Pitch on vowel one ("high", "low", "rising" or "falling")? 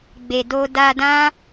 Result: low